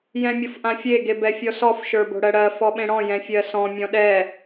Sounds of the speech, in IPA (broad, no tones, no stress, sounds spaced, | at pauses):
j ɛ̃ mʲ o f ʔ ã fʲ e ɡ e b ɛ fʲ ɔ s ɔ f ʃ ə˞ b o̤ ɽ ɜ ɽ ɜ f ɔ ɓ ẽ ɽ ɔ̃ j ɛ̃ fʲ ɜ s ɔ̃ mʲ ɔ̃ ɗ ɛ